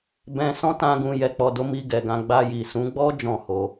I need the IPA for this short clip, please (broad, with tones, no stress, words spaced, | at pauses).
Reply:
bɛ̃˧ sɔ̃˦tã˧ ɡũ˧ jɛ˨k͡pɔ˨do˨˦ mi˧ɡɛ˨ɡã˧ ɡ͡ba˧ji˨sũ˨˦ ɡ͡bɔ˦ d͡ʒɔ̃˦˨ho˧